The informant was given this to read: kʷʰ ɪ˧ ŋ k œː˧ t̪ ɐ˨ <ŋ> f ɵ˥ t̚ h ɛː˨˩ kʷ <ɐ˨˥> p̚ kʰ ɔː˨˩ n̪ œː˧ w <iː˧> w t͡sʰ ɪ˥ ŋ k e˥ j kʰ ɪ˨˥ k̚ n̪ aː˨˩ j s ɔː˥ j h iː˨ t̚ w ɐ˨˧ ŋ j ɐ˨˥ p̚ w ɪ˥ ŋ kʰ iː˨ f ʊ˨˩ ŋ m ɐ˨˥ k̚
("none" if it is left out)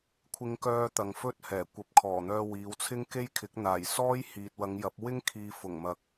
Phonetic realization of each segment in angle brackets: ŋ, ɐ˨˥, iː˨˧

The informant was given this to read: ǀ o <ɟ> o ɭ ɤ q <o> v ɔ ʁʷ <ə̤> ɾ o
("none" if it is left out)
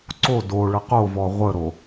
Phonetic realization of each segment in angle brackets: d, o, ə

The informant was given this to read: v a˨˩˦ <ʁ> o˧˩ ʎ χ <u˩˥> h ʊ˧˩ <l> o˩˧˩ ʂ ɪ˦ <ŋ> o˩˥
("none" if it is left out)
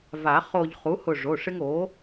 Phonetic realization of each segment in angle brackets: χ, u˩˥, ʐ, ŋ

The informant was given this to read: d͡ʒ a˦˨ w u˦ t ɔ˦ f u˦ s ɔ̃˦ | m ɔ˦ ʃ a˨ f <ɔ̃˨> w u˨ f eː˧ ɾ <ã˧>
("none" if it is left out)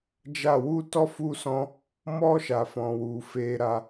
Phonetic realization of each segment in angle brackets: ɔ̃˨, a˧

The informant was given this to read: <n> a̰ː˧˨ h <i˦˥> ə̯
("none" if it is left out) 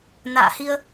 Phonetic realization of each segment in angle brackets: n, i˧

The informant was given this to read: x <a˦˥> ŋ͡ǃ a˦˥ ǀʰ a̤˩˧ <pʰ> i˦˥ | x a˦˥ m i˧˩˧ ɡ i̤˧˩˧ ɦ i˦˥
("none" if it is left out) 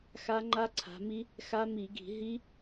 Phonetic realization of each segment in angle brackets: a˦˥, m

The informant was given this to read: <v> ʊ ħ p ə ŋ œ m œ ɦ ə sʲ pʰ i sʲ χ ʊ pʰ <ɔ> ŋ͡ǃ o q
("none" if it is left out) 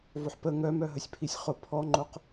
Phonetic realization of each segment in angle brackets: v, ɔ

